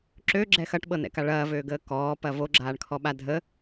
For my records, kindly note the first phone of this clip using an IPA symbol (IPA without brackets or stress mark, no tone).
ǁ